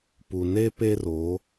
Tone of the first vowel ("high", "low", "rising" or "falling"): low